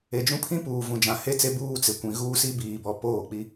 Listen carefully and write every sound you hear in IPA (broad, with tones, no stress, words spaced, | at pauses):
e˨d͡ʒũ˦pʰĩ˦puː˨ vũ˨d͡ʒã˨he˦t͡se˦ buː˦t͡sɪ˨kʷĩ˨ɣuː˦ si˦biː˨bɔ˨ poː˦˨k͡pi˦